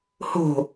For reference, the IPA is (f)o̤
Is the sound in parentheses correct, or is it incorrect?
incorrect